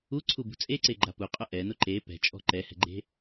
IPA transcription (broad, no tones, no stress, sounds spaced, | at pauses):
u ǀʰ u b ṳ t͡sʼ e ǀ e ɡ͡ǃ a p u qʼ ʊ ʔ ɛ n ʊ ǃ e p ɛ̤ t͡ʃʼ ɔ̤ ǃ ɛ h ɛ̤ ɡ͡ǃ e̤